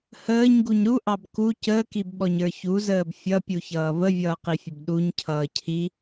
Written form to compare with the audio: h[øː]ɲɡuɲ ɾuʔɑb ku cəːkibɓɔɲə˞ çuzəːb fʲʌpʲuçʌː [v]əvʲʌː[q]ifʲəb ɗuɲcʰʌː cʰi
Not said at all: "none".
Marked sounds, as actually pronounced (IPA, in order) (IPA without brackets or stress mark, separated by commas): əː, v, q